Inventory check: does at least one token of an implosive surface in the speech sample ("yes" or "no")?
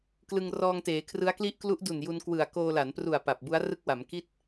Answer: no